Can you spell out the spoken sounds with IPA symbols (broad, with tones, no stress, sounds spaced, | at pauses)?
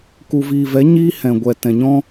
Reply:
k u˨ v iː˨ v ɛ˨˦ ɲ iː˦ h ɛ̃˨ ɡʷ ɛ˨ t ɛ̃˨ ɲ ɔ̃˦